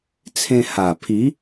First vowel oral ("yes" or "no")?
no